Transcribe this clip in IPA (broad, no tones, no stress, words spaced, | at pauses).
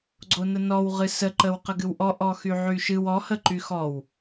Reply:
ɡ͡ǀonənɔw ʁɨsə ǃəwqəɡɨwʔɔ ʔɔxyʕyʃɨw ɔ həǃyxɔw